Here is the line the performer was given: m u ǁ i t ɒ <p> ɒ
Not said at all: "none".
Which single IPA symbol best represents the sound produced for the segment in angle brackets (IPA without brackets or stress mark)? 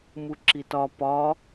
p